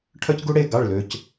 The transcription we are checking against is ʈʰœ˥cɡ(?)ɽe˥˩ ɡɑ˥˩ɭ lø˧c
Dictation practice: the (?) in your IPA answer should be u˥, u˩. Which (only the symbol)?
u˥